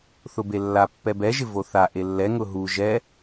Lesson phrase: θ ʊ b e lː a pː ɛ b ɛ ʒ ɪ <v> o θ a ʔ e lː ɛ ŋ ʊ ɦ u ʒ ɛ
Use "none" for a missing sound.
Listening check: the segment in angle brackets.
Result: v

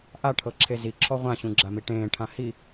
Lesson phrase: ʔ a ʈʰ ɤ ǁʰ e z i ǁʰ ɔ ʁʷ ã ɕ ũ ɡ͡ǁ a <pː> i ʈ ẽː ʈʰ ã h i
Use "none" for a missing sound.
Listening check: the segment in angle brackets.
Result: m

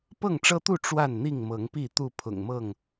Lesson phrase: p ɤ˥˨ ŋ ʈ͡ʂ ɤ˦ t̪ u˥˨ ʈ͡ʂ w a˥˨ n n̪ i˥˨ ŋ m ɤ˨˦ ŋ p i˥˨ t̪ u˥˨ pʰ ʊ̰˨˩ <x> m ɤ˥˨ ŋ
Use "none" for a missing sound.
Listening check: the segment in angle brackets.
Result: ŋ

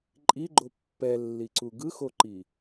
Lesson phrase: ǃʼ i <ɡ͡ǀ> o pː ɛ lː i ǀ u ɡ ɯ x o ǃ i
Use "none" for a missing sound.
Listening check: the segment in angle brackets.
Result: ɡ͡ǃ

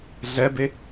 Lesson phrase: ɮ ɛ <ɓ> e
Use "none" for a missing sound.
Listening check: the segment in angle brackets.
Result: b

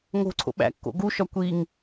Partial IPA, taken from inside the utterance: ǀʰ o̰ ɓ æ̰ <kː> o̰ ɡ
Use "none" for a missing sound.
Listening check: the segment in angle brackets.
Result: kː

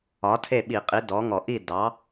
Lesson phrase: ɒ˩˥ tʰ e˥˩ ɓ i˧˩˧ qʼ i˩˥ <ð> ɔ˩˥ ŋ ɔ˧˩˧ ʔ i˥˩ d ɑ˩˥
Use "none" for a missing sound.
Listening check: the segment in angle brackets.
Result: d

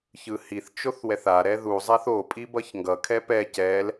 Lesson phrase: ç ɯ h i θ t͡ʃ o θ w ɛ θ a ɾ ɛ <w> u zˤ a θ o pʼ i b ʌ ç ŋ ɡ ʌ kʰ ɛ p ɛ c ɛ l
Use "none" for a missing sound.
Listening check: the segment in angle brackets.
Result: ð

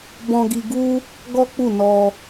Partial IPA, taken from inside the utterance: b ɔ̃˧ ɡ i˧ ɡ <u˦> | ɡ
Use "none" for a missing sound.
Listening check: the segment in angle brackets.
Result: u˦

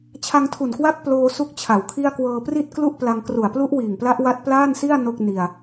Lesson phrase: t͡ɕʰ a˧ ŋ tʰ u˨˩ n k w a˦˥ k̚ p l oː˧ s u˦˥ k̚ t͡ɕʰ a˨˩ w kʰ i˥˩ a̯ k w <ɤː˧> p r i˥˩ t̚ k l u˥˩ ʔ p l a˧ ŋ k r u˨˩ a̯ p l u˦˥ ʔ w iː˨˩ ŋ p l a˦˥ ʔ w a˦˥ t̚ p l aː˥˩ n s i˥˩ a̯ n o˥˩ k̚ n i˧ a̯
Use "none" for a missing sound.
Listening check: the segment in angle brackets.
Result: ɤː˧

